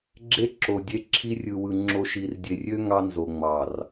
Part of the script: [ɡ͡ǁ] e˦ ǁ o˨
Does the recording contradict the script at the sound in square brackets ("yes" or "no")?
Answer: no